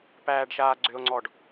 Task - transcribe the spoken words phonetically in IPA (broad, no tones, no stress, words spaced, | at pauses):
pæːɖʃaːɡ͡ǀʏo̯ŋ͡ǀɔɖ